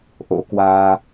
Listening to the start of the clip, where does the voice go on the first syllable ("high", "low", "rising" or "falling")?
rising